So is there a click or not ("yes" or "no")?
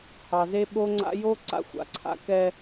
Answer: yes